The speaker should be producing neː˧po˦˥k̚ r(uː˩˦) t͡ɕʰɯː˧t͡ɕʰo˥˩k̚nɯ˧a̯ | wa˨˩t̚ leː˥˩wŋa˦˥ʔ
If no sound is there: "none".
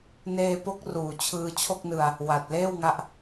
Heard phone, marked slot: uː˨˩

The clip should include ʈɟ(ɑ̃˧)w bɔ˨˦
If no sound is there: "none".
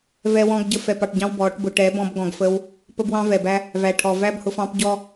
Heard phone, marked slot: ɑ̃˧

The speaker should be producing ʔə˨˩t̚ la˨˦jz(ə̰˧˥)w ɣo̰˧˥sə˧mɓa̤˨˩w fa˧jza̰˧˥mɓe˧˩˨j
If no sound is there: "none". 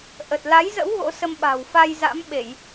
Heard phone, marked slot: ə̰˧˥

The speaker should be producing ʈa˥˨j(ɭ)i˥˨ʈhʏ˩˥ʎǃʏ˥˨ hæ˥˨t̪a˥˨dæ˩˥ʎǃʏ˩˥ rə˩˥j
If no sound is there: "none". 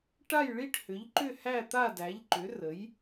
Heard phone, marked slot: ɭ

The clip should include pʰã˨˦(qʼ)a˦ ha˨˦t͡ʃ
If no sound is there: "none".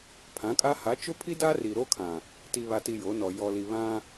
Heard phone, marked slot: kʼ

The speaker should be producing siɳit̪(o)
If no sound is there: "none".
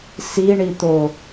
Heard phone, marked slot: o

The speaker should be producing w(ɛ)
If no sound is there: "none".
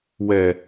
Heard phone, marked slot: ɛ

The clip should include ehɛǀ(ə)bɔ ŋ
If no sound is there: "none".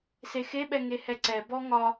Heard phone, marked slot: ɛ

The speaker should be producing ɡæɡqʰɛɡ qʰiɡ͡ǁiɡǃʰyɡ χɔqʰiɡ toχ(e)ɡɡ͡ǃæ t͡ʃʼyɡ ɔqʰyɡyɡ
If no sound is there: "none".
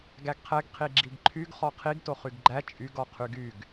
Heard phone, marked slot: y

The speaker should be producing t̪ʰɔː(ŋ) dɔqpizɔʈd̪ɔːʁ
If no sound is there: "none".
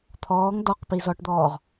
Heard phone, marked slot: ŋ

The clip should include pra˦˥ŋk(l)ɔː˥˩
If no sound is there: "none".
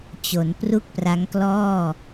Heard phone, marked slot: l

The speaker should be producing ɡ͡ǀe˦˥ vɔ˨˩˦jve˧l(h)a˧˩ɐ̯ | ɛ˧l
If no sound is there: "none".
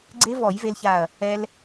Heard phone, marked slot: ç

